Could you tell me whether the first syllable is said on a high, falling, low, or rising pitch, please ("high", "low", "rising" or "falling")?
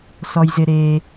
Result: low